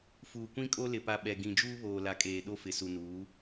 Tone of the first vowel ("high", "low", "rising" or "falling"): low